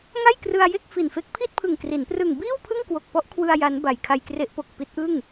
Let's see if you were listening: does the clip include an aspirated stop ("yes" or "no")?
yes